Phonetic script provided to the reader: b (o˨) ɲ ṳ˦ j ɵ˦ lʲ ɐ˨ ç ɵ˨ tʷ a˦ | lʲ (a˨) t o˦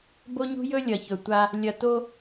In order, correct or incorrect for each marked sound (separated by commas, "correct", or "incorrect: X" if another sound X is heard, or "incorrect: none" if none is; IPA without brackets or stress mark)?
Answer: incorrect: o˦, incorrect: ɐ˨